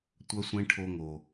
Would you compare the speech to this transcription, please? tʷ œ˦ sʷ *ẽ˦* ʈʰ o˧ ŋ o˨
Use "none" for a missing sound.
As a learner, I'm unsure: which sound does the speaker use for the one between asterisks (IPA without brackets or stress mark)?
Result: ẽ˦